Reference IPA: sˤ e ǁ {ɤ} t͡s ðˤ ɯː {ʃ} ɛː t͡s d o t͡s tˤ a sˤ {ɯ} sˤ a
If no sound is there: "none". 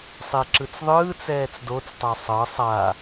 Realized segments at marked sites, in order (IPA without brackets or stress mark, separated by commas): ɯ, t͡s, ɤ